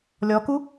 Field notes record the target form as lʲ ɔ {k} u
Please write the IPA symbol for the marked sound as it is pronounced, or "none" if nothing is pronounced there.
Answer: k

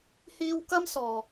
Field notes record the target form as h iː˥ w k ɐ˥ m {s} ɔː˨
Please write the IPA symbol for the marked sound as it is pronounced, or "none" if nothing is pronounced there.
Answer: s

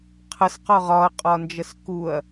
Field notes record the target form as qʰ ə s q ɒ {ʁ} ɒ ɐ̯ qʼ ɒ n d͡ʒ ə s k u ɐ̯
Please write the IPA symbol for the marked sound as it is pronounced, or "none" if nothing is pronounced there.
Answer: ʁ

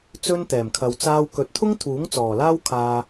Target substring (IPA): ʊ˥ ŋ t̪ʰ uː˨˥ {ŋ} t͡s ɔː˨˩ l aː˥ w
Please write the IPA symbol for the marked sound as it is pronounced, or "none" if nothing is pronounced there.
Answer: ŋ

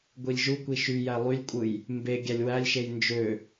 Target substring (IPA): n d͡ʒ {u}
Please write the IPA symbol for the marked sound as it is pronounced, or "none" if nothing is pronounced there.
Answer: ø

